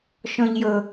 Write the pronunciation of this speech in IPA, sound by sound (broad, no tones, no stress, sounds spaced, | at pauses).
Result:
ʃ ɔ̃ ʎ j ɤ